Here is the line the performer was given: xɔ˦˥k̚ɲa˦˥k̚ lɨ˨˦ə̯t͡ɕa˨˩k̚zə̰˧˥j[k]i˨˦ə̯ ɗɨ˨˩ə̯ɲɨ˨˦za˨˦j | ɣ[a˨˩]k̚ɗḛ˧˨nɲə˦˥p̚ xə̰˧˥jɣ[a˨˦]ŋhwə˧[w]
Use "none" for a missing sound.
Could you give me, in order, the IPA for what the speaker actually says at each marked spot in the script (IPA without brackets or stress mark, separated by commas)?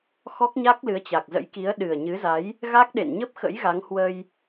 k, a˦˥, a˨˦, j